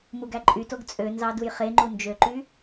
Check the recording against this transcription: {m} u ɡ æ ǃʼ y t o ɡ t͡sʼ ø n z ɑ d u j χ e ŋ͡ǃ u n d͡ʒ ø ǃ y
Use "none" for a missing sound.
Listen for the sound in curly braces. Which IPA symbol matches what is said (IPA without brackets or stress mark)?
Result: m